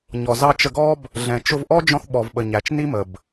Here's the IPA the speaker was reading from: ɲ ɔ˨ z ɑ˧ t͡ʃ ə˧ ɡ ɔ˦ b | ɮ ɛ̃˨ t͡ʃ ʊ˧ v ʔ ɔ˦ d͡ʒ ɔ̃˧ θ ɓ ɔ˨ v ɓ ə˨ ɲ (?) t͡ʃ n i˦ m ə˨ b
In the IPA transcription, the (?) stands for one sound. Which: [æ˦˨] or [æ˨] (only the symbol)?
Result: æ˨